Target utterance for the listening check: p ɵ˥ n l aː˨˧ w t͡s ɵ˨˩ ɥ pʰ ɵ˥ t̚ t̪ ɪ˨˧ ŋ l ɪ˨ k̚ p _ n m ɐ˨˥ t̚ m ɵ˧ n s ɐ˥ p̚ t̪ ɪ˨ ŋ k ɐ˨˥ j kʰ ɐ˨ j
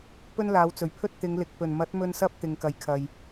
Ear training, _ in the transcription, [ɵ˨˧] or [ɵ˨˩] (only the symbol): ɵ˨˩